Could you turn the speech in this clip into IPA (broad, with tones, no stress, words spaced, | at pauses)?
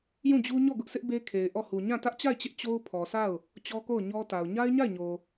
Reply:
jũ˦˨d͡ʑu˦ ɲɔ˦˨ɡʊ˦ʔsʰɪ˦ʔ be˦kʰe˨ɪ̯ ʔɔ˦˨hu˨ ɲã˦˨ tä˦ʔt͡ɕa˦˨ɪ̯t͡ɕɪ˦ʔ t͡ɕo˦ʊ̯ pʰɔ˨sʰa˦˨ʊ̯ | t͡ɕɔ˦ko˦˨ʊ̯ɲɔ˦ta˨ʊ̯ ɲa˦ɪ̯ɲa˦˨ɪ̯ɲo˨